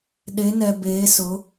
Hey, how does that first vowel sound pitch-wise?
rising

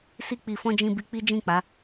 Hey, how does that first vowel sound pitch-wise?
high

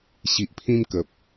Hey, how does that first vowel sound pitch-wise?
low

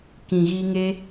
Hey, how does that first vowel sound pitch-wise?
low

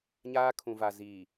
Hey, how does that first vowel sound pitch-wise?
high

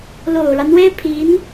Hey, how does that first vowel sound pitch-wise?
low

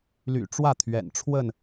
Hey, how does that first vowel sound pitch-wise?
low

